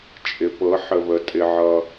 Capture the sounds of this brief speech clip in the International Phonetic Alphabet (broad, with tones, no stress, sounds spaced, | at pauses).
t͡ʃʼ ɪ˩ p ɤ˩˧ ħ ə˩ β ə˩ tʼ ɪ˩ ʕ ʌː˩